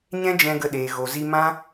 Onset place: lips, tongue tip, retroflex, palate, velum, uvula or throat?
palate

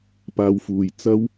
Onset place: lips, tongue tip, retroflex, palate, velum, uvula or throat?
lips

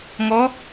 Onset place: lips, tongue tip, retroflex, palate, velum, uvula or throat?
velum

